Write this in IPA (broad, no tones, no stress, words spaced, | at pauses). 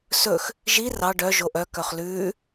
sɵx | ʒi rɑ ɖœ ʒoʔœ kœχlʉː